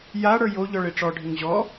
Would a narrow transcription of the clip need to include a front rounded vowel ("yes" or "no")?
no